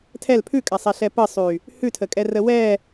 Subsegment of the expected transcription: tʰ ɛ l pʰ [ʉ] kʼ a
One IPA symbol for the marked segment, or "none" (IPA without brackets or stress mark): ʉ